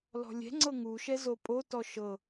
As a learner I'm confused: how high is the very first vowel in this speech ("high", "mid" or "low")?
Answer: mid